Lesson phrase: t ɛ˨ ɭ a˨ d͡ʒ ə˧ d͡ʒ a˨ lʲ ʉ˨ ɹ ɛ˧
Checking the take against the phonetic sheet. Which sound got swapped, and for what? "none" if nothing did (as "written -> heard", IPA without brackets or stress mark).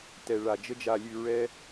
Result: none